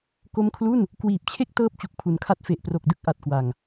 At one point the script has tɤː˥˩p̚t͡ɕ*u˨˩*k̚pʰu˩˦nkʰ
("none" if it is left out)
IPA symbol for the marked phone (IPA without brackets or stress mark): u˨˩